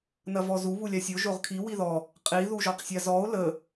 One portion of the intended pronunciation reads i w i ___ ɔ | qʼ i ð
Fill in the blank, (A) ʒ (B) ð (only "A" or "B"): B